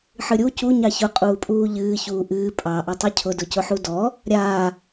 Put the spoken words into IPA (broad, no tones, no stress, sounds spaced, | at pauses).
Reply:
ħ ɨ ɾʲ u c u ɲ ɑ ç ʊ qʼ uː pʼ uː ʎ ɨː ç uː ʔ ɨː pʼ ɑ ʔ a tˤ ɨ cʰ ʊ d ʊ c ʊ ħ u d ɔ | ɾʲ aː